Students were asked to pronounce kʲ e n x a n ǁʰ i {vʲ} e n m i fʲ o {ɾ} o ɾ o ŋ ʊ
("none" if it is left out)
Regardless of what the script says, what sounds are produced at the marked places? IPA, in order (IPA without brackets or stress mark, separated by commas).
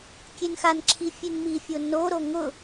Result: fʲ, n